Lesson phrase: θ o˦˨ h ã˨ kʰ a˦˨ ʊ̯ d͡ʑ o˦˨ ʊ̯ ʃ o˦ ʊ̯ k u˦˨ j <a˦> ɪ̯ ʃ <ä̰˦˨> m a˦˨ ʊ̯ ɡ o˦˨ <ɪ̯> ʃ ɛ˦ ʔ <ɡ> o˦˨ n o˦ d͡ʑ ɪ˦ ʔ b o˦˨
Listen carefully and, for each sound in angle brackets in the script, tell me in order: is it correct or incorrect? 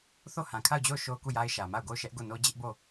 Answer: correct, incorrect: ä˨, incorrect: ʊ̯, correct

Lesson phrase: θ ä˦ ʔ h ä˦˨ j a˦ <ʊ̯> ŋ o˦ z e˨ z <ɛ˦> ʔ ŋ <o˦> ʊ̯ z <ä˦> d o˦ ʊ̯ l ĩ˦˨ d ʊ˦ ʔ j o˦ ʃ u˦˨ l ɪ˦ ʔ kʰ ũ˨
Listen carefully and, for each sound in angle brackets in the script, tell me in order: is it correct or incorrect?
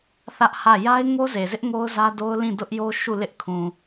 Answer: incorrect: ɪ̯, incorrect: ɪ˦, correct, correct

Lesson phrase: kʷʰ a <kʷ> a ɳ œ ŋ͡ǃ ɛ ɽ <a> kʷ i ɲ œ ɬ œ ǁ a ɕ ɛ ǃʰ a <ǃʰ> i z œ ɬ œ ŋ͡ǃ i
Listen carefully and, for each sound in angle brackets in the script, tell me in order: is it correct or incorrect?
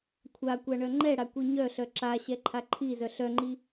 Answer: correct, correct, correct

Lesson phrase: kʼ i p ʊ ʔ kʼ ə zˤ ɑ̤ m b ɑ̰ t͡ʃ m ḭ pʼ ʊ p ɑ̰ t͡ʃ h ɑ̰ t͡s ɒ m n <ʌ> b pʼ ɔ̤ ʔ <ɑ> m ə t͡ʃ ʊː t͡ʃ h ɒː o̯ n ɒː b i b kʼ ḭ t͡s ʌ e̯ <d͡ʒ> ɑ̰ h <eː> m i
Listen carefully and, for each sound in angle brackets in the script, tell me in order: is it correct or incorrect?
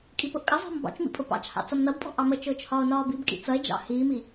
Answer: correct, correct, correct, incorrect: iː

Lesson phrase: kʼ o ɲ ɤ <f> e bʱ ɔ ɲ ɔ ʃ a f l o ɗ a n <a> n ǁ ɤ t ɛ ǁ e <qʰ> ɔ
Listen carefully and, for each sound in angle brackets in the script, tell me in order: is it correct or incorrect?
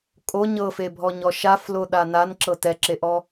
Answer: correct, correct, incorrect: ʔ

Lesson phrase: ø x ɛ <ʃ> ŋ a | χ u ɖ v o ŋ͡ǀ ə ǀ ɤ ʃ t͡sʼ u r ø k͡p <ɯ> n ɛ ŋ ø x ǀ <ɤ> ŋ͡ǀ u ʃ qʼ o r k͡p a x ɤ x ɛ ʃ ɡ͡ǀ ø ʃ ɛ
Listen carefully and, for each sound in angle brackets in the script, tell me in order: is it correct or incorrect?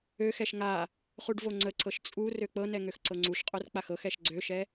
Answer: correct, incorrect: ɤ, correct

